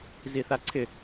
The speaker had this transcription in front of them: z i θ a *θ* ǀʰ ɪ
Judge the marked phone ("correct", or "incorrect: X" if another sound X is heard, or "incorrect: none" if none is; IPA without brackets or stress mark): incorrect: none